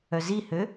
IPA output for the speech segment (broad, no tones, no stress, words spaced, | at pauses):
œzihø